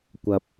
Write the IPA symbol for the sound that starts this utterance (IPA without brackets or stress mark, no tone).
kʷ